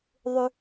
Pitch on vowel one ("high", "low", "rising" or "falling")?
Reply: high